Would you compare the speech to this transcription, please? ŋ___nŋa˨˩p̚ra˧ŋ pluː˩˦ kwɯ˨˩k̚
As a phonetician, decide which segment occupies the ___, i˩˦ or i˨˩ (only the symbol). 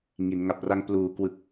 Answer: i˩˦